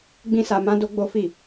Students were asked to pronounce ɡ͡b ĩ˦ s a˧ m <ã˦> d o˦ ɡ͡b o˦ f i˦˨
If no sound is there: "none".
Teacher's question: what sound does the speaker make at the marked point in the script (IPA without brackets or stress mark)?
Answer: ã˦